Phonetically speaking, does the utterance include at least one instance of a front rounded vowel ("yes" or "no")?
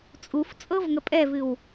no